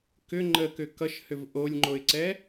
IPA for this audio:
k ʏ ŋ͡ǃ ə k ʏ k ʌ ʃ h ʏ v ʔ o lʲ ŋ͡ǃ o ɪ̯ ǀ ɛ

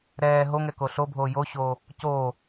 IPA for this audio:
ɾ ɛː ɦ o ŋ ɛ k o ɬ o bʱ oː j o ɕ oː | c oː

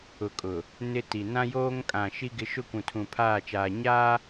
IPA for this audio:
ʊ˨ kʼ ʊ˨ | n ɪ˦ t i˨ n ã˦ j oː˦ ŋ kʼ ã˨ ʃ i˦ ɡ ɪ˦ ʃ ʊ˦ kʷ ũ˨ tʰ ũ˨ pʰ aː˦˨ t͡ʃ aː˨ ɲ aː˦

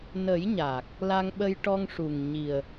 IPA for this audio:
n ə˨˩˦ j ɲ aː˨˩ k̚ | l a˧ ŋ ɓ ə˧ j ʈ ɔ˧ ŋ ʂ u˨˩ ŋ ɲ i˨˩ ə̯

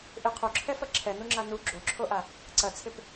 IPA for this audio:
ʔ ɪ qʰ o ǁʰ ɛ f ɐ ǁʰ ɛ n u ŋ͡ǁ a n u ɡ͡ǁ o ǁʰ o ʔ a | ǀ ɐ t͡sʰ ɪ p

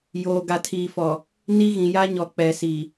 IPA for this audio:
j oː˨ ɡ a˨ tʰ iː˨ f ɔ˨ | n i˦ ɣ ĩ˨ j a˦ ɲ ɔ˨ k͡p ɛ˨ s i˨

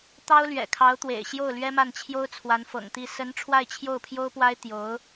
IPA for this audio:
t̪ ɑ˥ ʊ̯ l ɥ ɛ̰˨˩ kʰ ɑ˧˥ ʊ̯ t̪ w ḛ˨˩ ɪ̯ ɕ j o˥˩ ʊ̯ l ɥ ɛ˥ m a˥˩ n t͡ɕʰ j o˥ ʊ̯ t͡sʰ w a˧˥ n f ɤ̰˨˩ ŋ t̪ i˥˩ s ə˧˥ n ʈ͡ʂʰ w a˥˧ ɪ̯ t͡ɕʰ j o˥˩ ʊ̯ pʰ j o˥ ʊ̯ p w a˥ ɪ̯ t̪ j o˧˥ ʊ̯

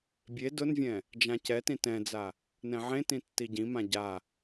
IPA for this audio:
bʲ e d ʊ n vʲ ɛ̃ | d͡ʒ ã c ɛ t ĩ t ɛ̃ d͡z a | n ɛ̃ ʕ ẽ t ĩ tː i ɟ ĩ m ã ɟ a

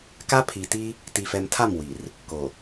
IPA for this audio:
k a˦ pʰ i˨ t i˦ | t i˨ f ɛ˨ m tʰ a˦˨ m w i˨ r | k o˨

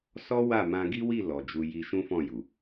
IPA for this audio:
s ɔ˦ w a˦˨ m ã˧ ɡ i˦ w i˦˨ l ɔ˨ d͡ʒ u˧ j i˧ ʃ ũ˦ f ɔ̃˦˨ j u˨

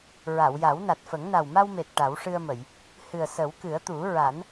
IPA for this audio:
ɹ a˨˩˨ w j a˨˩˦ w n a˨˩ t̚ f ə˨˩˦ ŋ n a˨˩ w m a˧ w m e˨˩ t̚ ʈ a˨˩˦ w ʂ ɨ˧ ə̯ m ə˨˩˨ j | h ɨ˨˩ ə̯ s ə˨˩˦ w k ɨ˨˩˦ ə̯ t̪ u˨˩˦ ɹ a˨˩˦ n

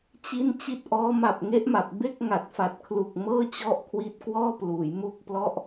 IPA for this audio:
t͡ɕ i˥˩ n t͡ɕ i˦˥ t̚ ʔ ɔː˦˥ m a˨˩ p̚ ŋ e˦˥ ʔ m a˨˩ p̚ b e˥˩ k̚ ŋ a˨˩ t̚ f a˨˩ t̚ kʰ l u˨˩ k̚ m ɤː˥˩ t͡ɕ ɔ˥˩ ʔ kʰ w i˦˥ t̚ k w ɔː˥˩ p l uː˩˦ j m u˥˩ k̚ p l ɔ˦˥ ʔ

